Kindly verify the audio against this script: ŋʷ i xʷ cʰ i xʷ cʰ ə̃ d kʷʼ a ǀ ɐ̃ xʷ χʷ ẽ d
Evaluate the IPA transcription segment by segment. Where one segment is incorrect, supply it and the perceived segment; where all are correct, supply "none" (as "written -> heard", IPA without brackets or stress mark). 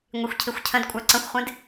ɐ̃ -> ə̃